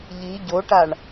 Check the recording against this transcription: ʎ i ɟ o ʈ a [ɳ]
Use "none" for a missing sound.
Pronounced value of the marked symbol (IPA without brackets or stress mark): ɳ